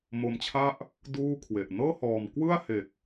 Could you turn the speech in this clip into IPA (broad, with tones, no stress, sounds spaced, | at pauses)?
m o˧ m t͡ɕʰ a˥˩ ʔ | d uː˥˩ kʰ w e˨˩ ʔ n ɤː˥˩ h ɔː˨˩ m k w ɯ˥˩ a̯ h e˨˩ k̚